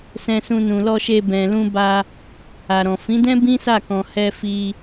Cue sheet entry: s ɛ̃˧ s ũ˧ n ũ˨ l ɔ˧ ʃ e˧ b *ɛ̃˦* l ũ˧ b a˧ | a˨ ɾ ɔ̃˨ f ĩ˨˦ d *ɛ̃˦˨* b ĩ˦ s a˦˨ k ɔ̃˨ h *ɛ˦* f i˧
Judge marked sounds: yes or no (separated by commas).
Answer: no, no, no